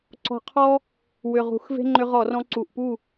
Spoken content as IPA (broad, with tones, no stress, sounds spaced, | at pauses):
ǀ ɔ̤˧ qʰ ɔ˥ | w ʏ˨˩ ʁ ṳ˧˩˧ x v e̤˥ ŋ͡ǃ ʏ˧ ʁ ɔ˧˩˧ r ɔ̃˧ ǀ u˨˩ ʔ p u˥˩